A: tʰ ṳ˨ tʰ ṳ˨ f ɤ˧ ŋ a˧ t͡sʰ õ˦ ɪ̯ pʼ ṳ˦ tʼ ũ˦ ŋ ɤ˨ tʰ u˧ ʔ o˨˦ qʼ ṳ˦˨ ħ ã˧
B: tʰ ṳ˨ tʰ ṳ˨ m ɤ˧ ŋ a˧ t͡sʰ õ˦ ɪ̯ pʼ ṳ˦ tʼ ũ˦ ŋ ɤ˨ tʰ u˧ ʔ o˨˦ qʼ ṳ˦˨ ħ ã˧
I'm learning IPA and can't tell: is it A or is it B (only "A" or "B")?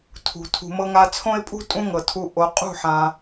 B